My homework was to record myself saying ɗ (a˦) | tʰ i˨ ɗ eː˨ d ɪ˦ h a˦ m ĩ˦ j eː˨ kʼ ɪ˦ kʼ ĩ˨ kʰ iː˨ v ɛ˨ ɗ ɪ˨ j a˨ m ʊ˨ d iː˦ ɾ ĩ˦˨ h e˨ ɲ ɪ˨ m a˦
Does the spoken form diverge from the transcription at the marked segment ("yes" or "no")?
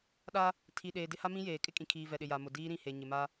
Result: no